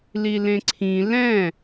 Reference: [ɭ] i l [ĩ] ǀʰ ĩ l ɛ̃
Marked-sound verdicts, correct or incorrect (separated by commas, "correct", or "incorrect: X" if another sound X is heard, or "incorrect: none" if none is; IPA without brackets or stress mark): incorrect: l, incorrect: ẽ